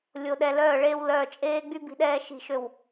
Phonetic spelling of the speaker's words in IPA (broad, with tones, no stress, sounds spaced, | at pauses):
lʲ o˨ ɗ ɛ˨ l œː˦˨ ɭ eː˦ w l œː˨ t͡ʃʼ eː˦ ɡ͡b y˦ b i̤˦ ɗ ɛː˦ ʃ i̤˦˨ ʃ ø˦˨ w